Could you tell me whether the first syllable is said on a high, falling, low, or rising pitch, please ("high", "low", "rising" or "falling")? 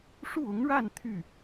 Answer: falling